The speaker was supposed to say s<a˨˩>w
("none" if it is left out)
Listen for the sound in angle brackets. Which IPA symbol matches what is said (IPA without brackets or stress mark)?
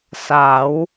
a˩˦